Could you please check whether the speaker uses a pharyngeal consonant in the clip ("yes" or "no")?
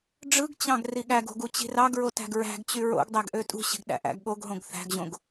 no